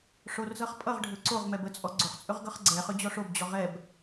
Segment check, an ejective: present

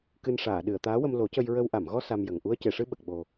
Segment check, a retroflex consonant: present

